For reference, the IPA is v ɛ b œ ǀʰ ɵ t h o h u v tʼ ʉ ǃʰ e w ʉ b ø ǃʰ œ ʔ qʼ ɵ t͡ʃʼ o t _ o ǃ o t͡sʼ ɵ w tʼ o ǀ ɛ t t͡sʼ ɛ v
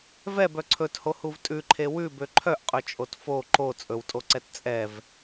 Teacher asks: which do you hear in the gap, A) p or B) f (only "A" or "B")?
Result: B